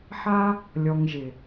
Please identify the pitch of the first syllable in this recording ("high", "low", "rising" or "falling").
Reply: high